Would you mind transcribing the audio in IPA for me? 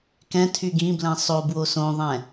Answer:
k ɛ̃ tʰ y ɡ ĩ b l ɛ̃ sˤ o b w o s õ ðˤ ɛ̃

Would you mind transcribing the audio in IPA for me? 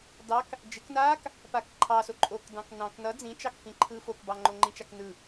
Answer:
d ɑ k | d͡ʒ ɪ k n aː k | p a k ǃʰ ɑ s o ǃʼ o k d ɑ̃ k n ɑ̃ k n ʌ d͡z ĩ t͡ʃ ɑ k f ĩ ǃʰ ɯː f o k b ɑ ŋ͡ǃ o ŋ͡ǃ ĩ t͡ʃ a k n ɯ

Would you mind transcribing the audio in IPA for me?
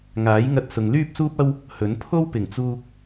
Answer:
ŋ aː˨˥ j ŋ ɐ˧ t̚ s ʊ˨ ŋ l yː˥ p̚ s uː˥ p̚ ɐ˥ w | h ɵ˨˥ n pʰ o˥ w p ɪ˨˩ ŋ t͡s uː˧ k̚

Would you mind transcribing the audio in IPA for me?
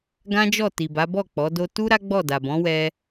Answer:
ɡ ã˦ d͡ʒ ɔ˦˨ t i˨ b a˨˦ b ɔ˦˨ k͡p ɔ˨˦ d o˦ t u˦ ɾ a˦ ɡ͡b ɔ˦˨ d a˨ b ɔ̃˨˦ w ɛ˦

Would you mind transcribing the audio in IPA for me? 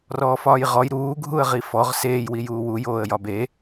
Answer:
r ɔː f ɒː j ʁ ɔ j ɾ uː ɡʱ u ə̯ ʁ i f ɔ ʁ s eː j w i j uː w u j oː ə̯ j ɒ b e

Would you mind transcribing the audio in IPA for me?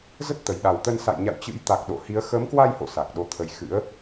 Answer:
z ə˦˥ t̚ t̪ ə˨˩ j ɗ a˨˩ w t̪ ə˧ n s a̰˧˨ j ɲ a̰˧˨ w t͡ɕ ɨ̰˧˥ j t̪ a˨˩ k̚ ɗ o̰˧˨ h i˨˦ ə̯ x əː˨˦ m k w a˧ j h o̰˧˨ s a˨˩ k̚ ɗ o˨˦ t̪ʰ ə˨˦ j x ɨ̰˧˥ ə̯

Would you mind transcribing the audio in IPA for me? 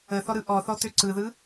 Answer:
ə θ ɔ ɾ ɯ ʔ ɔ θ ɔ t ø ǀ ɯ ð ɯ

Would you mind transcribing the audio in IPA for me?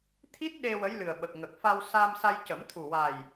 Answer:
t̪ʰ i˦˥ t̚ ɗ e˧ w ə˧˥ j l ɨ˨˩ ə̯ ɓ ə˨˩ k̚ ŋ ə˨˩ k̚ f a˧ w s a˧ m s a˧ j c ə˨˩˦ m t̪ʰ u˨˩ w a˨˩ j

